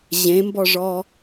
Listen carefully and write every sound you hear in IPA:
ʑ ẽ m b ɔ ʐ ɔ

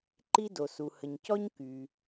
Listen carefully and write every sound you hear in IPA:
ǃ i˥ d o˩ s u˩ h ə˩ ɲ c ɔ˥ ɲ k y˩

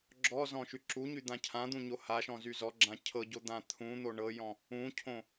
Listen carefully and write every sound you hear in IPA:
ɡ͡ǁ ɔ z ɔ̃ ʃ y ǁ u ɲ y d̪ ã cʰ ã d̪ ũ ɲ o h a ʃ ɔ̃ z y z ɔ ɡ͡ǁ ã cʰ ɤ ɟ o d̪ ã t̪ʰ ũ n̪ o ɳ ɤ j ɔ̃ | ũ cʰ õ

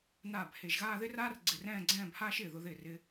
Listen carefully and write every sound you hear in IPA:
n aː˧˩ b h e˧˩ ʒ ɣ aː˥˧ ð ɪ˥ r aː˥ r ɡ͡ǀ ɪ˧˩ r ɛ̃ː˥˧ ɡ͡ǀ ɛ̃ː˥˧ b h aː˥ ʃ ɪː˧˩ ð ʊ˧ ð ɪː˧˩ r ɪ˧

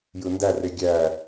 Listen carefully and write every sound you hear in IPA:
j ɯ n d æ r e ɡʲ æ

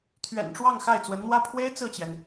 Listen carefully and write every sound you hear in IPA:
t̪ʰ ɥ ɛ̰˨˩ n ʈ͡ʂ w ɑ˥˧ ŋ x a˥˩ ɪ̯ t͡s w ə˧˥ n n̪ w ä˥ pʰ w e˥ ɪ̯ t͡s ɹ̩˥˩ t͡ɕ j ɛ˩ n

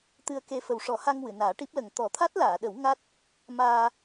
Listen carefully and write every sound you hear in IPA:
t̪ ɨ˧ ə̯ k e˧ f ə˨˩ w ʂ ɔ˨˩˦ h a˧ ŋ w ɨ˨˩˨ n aː˨˩˦ ʈ i˦˥ p̚ l ə˨˩ ŋ t̪ ɔ˨˩˦ t̪ʰ a˦˥ t̚ l aː˨˩˨ ɗ ə˨˩˦ w ŋ a˦˥ t̚ | m aː˧

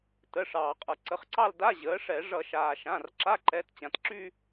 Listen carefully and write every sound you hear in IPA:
t ə˩˧˩ ʂ ɑː˩ qʼ ʌ˩ ǀ ə˩˧˩ χ ǀ ɑ˥˧ l d a˧˥˧ ʑ əː˩˥ ʂ ɛ˧˩˧ ʐ ʌ˧˩˧ ʃ aː˩ ʃ ã˩˧˩ r ǁ a˧˥˧ ǃ ɛ˩˧˩ t t͡ɕ ã˩ t ǁ y˥˧

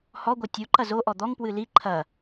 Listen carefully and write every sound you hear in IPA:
h ɔ ɡʷ ɛ tʲ u ǃ ɐ z o ʔ ɔ d̪ ɔ ŋ p w ɨ l i ǃʰ ɐ

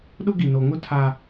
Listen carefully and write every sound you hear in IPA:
ɗ ʊ˦ ɡ i˨ n o˨ ŋ ʊ˦˨ tʰ a˦

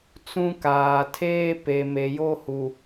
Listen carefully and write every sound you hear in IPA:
t͡s ũ˦ k aː˨ tʰ eː˦ p e˨ m e˨ j o˦ h u˨

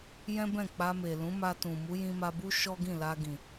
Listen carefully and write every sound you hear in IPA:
j ɛ̃˦ b ɛ̃˦˨ k͡p a˧ m e˨ l ũ˨˦ m a˧ t ũ˨ m u˨˦ j ĩ˧ m a˧ b u˦ ʃ ɔ˦ ɡ ĩ˦˨ l a˧ ɡ ĩ˨

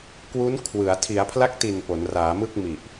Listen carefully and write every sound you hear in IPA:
k w u˦˥ n kʰ w ɯ˩˦ a̯ tʰ i˩˦ a̯ pʰ l a˦˥ k̚ t i˨˩ n p o˩˦ n r aː˩˦ m ɯ˥˩ k̚ m i˨˩ ʔ

